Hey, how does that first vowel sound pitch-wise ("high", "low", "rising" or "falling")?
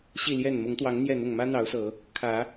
falling